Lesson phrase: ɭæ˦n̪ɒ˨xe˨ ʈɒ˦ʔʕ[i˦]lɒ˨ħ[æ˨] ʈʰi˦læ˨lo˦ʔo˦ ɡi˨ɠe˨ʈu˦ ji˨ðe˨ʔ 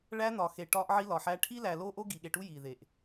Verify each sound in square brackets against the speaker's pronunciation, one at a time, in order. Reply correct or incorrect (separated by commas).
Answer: correct, incorrect